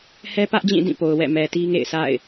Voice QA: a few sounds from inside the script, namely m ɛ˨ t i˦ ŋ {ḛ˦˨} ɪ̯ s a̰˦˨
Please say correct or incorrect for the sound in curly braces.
correct